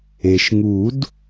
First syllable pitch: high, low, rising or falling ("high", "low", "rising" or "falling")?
low